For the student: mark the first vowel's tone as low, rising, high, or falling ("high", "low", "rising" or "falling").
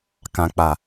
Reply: low